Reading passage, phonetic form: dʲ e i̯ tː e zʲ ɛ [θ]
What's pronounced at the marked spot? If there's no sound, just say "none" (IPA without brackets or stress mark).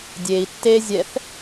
θ